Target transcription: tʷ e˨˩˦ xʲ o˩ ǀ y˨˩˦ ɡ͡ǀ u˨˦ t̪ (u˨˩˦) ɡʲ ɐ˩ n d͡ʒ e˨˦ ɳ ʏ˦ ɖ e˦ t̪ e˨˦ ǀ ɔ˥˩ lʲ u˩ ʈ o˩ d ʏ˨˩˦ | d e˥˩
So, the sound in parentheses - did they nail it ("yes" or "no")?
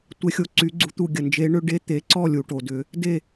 no